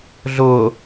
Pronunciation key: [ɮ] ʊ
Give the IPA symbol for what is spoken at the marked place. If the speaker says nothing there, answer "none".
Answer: ɮ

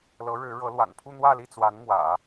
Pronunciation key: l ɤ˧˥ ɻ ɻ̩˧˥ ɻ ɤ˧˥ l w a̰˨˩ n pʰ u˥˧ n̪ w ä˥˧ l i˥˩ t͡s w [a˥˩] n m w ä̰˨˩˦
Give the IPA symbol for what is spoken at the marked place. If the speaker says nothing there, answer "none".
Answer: a˧˥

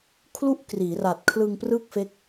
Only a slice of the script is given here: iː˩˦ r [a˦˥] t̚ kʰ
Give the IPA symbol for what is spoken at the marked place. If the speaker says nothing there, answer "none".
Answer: a˨˩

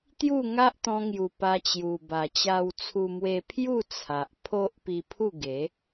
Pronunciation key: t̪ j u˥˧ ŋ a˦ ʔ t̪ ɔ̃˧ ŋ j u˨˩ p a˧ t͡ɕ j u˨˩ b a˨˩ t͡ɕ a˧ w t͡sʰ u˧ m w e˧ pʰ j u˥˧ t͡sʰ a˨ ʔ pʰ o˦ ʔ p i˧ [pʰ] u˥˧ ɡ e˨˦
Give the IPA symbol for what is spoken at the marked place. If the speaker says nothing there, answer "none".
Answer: pʰ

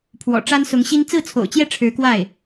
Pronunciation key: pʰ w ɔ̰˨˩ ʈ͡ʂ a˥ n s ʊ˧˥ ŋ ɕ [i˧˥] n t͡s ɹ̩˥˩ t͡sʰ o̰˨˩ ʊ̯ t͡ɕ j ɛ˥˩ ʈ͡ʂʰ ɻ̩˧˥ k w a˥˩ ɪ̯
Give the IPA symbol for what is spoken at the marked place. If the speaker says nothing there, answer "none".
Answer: i˥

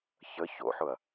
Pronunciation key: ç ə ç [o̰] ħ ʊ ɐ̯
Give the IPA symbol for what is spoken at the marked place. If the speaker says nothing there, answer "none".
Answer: o̰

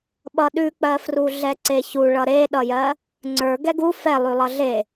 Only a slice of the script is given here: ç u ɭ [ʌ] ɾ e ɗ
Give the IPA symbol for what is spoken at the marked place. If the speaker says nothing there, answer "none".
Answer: ʌ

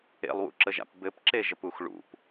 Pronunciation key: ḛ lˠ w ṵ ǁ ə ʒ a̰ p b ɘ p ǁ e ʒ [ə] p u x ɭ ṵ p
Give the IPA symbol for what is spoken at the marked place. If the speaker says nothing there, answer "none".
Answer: ə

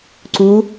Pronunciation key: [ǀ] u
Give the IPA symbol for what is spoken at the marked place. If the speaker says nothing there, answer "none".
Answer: ǀ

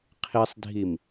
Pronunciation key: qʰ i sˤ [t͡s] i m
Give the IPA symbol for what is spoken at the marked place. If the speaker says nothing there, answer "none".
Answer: dʱ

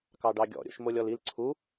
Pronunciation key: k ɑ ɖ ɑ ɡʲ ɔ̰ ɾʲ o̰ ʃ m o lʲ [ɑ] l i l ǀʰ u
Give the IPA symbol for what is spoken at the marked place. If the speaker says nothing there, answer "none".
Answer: ɔ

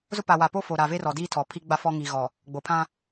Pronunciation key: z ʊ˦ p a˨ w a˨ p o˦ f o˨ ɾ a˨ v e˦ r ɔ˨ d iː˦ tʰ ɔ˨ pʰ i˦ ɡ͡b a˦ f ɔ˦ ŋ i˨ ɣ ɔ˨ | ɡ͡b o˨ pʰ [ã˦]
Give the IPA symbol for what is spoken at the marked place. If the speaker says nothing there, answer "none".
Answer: ã˦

